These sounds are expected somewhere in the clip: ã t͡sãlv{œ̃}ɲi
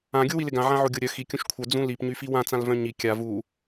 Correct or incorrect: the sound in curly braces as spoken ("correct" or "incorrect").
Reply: correct